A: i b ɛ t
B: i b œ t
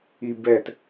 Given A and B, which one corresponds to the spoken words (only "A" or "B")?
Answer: A